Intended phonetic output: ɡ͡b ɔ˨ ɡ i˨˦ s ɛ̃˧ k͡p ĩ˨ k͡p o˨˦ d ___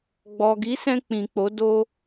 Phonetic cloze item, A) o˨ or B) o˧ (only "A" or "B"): B